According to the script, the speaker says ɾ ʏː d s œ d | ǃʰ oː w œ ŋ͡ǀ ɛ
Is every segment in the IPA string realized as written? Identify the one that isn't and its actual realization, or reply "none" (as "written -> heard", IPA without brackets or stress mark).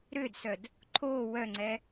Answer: none